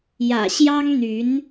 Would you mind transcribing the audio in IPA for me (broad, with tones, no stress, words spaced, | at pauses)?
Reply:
jä̰˨˩ɕjɑ˥ŋn̪y˧˥n